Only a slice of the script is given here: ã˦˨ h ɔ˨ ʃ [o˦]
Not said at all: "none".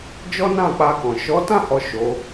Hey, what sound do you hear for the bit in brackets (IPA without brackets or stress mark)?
o˨˦